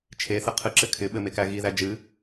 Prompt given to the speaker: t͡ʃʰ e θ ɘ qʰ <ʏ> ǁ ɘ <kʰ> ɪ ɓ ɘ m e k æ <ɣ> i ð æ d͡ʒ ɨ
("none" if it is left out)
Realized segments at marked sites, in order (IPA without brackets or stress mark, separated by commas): ɨ, kʰ, ɣ